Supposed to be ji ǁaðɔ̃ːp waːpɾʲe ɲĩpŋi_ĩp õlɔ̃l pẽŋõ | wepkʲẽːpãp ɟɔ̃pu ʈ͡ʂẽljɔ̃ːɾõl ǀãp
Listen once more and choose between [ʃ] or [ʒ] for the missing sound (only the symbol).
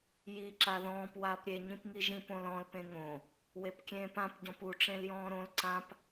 ʒ